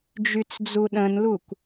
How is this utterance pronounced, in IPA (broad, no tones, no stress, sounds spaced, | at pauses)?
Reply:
d͡ʒ y t͡s d͡z u ɗ ə̃ n l u kʷ